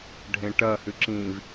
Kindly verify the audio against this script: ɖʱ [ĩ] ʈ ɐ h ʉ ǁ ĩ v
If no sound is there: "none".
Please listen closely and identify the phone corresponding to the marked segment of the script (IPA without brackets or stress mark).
ẽ